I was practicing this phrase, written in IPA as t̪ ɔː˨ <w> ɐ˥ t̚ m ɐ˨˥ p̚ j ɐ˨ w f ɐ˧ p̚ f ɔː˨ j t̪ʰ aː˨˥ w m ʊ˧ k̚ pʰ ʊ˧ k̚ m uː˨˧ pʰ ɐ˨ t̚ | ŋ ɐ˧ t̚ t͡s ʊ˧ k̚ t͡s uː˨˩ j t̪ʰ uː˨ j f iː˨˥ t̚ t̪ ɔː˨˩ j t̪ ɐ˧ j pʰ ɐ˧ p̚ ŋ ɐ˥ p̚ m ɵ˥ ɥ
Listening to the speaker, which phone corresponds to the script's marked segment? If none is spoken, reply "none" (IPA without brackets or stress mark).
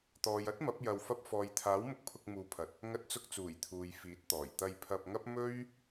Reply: j